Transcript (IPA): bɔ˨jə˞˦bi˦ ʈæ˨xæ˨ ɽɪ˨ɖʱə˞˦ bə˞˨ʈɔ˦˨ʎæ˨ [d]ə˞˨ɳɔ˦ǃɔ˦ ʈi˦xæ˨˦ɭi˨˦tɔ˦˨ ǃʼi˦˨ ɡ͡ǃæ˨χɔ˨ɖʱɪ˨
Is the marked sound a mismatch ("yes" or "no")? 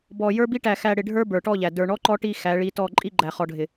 no